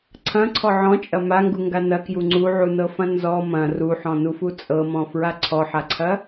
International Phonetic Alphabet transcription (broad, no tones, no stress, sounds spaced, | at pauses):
ǀʰ ɐ̃ ǀʰ ɔ ʕ ɔ̃ t͡ʃʼ ɐ m a ŋ ɡ u ŋ ɡ a n ɐ k j u ŋ͡ǀ u ʕ u n ɤ f ɐ̃ n z ɔ m ɐ̃ r u ħ ɔ̃ n u f u t͡sʼ ɤ m ɔ̃ f ɹ a ǀʰ ɔ ħ a ǀʰ ɐ